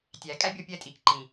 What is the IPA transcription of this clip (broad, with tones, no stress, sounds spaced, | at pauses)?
tʲ æ˨ kʼ æ˦ bʲ ɔ˧ pʲ ɛ˧ tʼ iː˨ k ǃ ĩ˨